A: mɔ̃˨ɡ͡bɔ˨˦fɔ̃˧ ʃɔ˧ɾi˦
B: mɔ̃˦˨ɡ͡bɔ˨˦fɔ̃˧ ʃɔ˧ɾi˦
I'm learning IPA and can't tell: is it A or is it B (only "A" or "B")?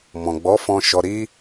A